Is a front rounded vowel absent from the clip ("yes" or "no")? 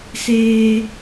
yes